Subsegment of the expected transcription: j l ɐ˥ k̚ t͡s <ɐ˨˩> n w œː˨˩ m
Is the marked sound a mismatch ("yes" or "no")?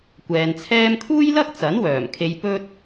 yes